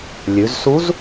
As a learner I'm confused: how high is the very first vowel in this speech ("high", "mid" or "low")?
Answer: high